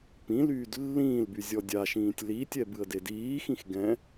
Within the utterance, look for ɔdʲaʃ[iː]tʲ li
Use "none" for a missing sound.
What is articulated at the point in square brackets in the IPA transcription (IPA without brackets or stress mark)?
ĩː